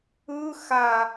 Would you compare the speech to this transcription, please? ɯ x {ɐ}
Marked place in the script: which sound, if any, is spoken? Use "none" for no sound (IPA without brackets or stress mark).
a